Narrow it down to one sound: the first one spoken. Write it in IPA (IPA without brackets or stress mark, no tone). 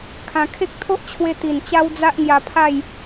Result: kʰ